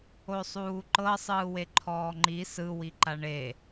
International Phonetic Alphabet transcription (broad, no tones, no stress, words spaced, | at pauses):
osˤuːǃɤ sˤɯːweǃʰɔːŋ͡ǃi sɯwi ǃaɳe